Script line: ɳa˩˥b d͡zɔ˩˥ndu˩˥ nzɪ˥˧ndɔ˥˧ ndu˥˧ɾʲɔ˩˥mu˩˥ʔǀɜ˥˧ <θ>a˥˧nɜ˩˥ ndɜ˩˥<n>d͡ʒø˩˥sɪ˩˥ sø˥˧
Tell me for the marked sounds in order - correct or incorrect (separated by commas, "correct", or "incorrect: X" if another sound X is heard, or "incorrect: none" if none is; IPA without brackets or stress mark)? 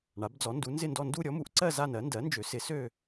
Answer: incorrect: z, correct